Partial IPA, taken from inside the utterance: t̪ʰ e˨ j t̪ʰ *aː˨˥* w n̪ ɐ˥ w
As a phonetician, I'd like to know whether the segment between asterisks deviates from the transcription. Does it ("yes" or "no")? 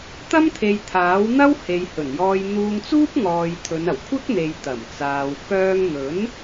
no